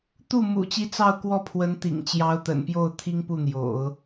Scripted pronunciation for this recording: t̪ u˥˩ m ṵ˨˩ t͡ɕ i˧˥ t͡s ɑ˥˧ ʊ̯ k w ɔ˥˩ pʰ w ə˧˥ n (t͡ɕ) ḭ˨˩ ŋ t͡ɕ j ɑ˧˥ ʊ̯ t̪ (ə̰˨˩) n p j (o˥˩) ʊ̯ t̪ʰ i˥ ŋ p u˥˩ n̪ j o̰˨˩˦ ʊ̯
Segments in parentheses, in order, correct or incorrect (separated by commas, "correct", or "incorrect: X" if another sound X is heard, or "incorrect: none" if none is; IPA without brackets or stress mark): incorrect: t̪, correct, correct